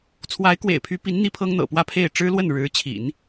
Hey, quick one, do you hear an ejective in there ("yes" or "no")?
no